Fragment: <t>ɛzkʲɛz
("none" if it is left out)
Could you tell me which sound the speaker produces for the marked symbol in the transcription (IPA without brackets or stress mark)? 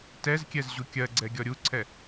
t